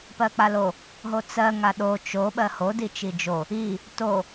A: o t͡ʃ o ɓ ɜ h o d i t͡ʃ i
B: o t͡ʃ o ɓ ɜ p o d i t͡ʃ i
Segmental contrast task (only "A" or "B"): A